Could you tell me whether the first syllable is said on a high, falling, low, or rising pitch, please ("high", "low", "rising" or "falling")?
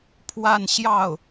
falling